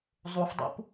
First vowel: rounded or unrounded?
rounded